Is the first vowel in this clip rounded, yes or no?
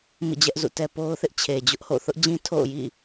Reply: no